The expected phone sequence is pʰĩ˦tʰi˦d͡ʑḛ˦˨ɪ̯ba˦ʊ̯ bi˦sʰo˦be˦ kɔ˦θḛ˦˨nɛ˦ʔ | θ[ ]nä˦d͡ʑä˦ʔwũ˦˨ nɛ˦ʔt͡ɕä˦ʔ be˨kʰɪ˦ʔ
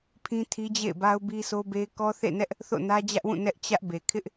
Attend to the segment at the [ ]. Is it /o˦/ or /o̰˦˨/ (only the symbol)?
o̰˦˨